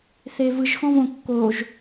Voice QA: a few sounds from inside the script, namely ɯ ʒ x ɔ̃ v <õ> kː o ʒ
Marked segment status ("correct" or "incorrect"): correct